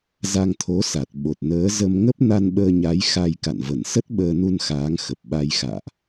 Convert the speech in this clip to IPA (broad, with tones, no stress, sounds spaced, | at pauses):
z a˧ ŋ t̪ʰ o˨˦ s a˨˩ t̚ ɓ o˨˩ t̚ n əː˨˦ z ə˧ m ŋ ə˦˥ p̚ n a˧ n ɓ əː˧ ɲ a˨˦ j x a˧ j k a̰˧˨ n v ə˧˩ n s ə˦˥ t̚ ɓ əː˧ n u˧ n x aː˨˦ ŋ x ə˨˩ p̚ ɓ a˧ j x a̰ː˧˨ ʔ